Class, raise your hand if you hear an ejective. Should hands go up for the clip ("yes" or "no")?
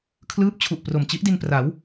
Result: no